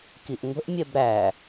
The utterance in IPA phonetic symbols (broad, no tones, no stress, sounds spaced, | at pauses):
k i ʔ ŋʷ ə̤ ʔ mʲ ɛ b ɾ æ